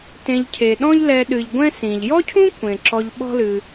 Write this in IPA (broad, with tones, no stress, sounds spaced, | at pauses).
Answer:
t ẽ˨ ʎ cʰ e˩ ɗ ɔ̃˦ ʎ l ɛ˨ ɗ ɨ˩ ʎ ɡʷ ɛ̃˦ s ĩ˩ ʎ j ɔ˥ cʰ ũ˥ kʷ ẽ˩ ǁ ɔ˨ ʎ ɓ ɔ̤˦ l ɨ˨